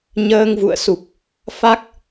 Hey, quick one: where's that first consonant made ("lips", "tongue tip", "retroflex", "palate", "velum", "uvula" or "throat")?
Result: palate